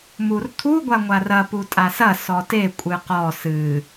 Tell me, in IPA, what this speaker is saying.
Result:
murt̪ʰu ɡʷaŋʷarɐ putʼasɐ sɔte kʷʼɨqɔ sɨ

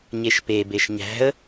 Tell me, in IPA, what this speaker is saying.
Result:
ɲeʃpe beʃɲæ̤ə̯

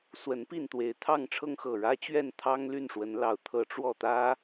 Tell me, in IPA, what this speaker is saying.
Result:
swə˨˦npi˥˨n t̪we˨˦ɪ̯t̪ʰɑ˥˨ŋʈ͡ʂʰɤ˦ŋ xɤ˨˩ɻä˦t͡ɕɥɛ˥˨n t̪ʰɑ˦ŋ ly˥˨nʂwə˨˦n lɑ˨˩ʊ̯t̪ʰɤ˨˦ ʈ͡ʂwɔ˥˨t̪ä˦

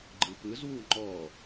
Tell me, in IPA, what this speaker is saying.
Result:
ɡ͡ǃɯpɯzwu ŋ͡ǃɔ

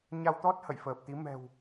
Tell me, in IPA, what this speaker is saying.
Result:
ɲa˧wt̪ɔ˦˥t̚ hə̰˧˨jfəː˨˩p̚t̪i˨˦ mɛ̤˨˩w

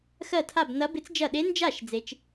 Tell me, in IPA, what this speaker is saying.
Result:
xɜ˥˩tʰa˥˩b nɐ˧˥bɪ˧˥t͡s d͡ʒɐ˥˩ ɗe˧˥nd͡ʒa˥˩ʃ d͡ze˧˥t͡ʃ

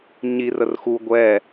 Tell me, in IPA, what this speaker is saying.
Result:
ɲirər xu ɡʷɛ

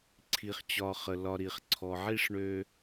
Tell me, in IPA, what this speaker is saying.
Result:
ǀʰi˨χt͡ɕɒ˨ χə˩lɒ˨ɾi˩χ ǀʰɔ˨ʕi˥ʂɳø˦

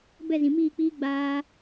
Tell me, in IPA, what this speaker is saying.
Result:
bɛ˦˨zĩ˨miː˦˨k͡piː˦ ɡ͡baː˧

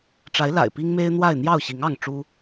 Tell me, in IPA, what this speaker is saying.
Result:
ʈ͡ʂa˨˦ɪ̯la̰˨˩ɪ̯ pi˦ŋme˦ɪ̯n̪wa˥˨ɪ̯ n̪jɑ˥˨ʊ̯ɕi˨˦ŋɑ˥˨ŋ ʈ͡ʂu˦

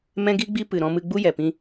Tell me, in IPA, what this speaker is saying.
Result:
mɛ̃˦ɡi˦ɡ͡bi˦ pɨ˨ɾɔ̃˧mɨ˧ ɡ͡bu˦jɛ˨pĩ˧

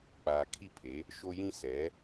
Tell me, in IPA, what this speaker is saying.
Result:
k͡paː˨kʰi˦˨pʰe˨˦ | ʃo˦jĩ˦ sɛ˨˦

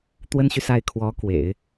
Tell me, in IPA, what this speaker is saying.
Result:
t̪wə˥nɕy˨sa˥˩ɪ̯ kʰwɔ˧˥kwḛ˨˩˦ɪ̯

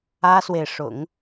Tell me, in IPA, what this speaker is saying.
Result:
ä˥swe˨ɪ̯ʂʊ̰˨˩˦ŋ

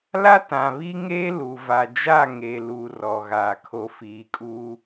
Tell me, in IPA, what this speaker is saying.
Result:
la˦tã˨βi˦ŋeː˦ lu˨va˨d͡ʒa˦˨ŋe˨ luː˦rɔ˨ɣaː˨kʰo˦ fiː˨kʼuː˦

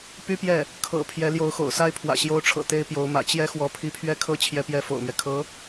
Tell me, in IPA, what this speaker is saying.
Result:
py˥pjɛ˥˩ | kʰɤ̰˨˩ pʰjɛ˧˥ljo˧˥ʊ̯xo̰˨˩ʊ̯sa˥ɪ̯ pʰwä̰˨˩ɕjo˧˥ʊ̯ʈ͡ʂʰɤ̰˨˩ t̪e˥ɪ̯pjo˧˥ʊ̯mä̰˨˩ t͡ɕjɛ˥xwɔ˧˥ pʰi˧˥pʰɥɛ˥kʰɤ˥ t͡ɕʰjɛ˥pjɛ˥fo̰˨˩ʊ̯mɥɛ˦ kʰɤ˧˥

